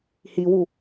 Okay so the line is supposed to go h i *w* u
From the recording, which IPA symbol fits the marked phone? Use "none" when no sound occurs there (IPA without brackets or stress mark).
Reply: w